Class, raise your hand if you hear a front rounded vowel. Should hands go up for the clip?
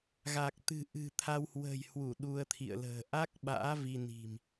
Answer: no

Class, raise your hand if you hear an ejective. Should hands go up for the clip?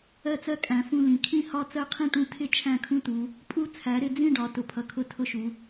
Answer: yes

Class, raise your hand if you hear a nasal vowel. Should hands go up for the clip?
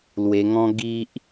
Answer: yes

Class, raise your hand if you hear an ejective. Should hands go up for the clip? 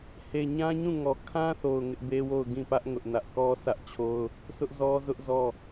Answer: no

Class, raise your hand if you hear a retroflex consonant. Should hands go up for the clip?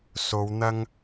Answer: no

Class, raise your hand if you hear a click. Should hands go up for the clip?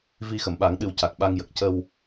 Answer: no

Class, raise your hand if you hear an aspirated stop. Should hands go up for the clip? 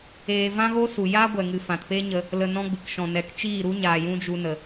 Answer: no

